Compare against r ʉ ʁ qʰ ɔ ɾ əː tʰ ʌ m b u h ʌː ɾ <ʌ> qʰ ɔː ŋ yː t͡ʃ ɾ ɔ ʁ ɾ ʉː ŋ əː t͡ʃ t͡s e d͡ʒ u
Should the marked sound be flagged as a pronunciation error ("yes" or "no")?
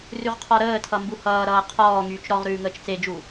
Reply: yes